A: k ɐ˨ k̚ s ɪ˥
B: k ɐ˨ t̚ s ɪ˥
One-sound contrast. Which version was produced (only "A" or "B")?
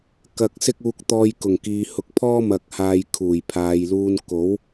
A